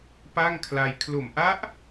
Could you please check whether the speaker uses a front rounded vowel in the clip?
no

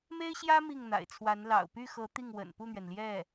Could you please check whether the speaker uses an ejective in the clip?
no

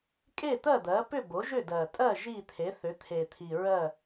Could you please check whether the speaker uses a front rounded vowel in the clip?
yes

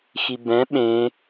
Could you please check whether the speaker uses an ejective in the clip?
no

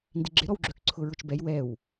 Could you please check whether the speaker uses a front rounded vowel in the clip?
yes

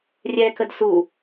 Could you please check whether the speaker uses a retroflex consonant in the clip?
no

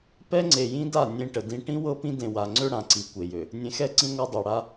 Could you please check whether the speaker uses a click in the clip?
yes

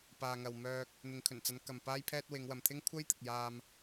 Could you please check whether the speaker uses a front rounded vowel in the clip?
yes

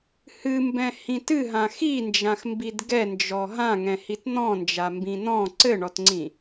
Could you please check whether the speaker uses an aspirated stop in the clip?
no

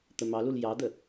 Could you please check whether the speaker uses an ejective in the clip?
no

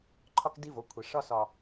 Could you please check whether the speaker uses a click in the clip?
yes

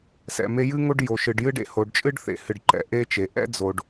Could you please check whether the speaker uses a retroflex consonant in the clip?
yes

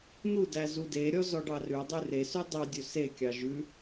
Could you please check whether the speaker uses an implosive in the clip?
no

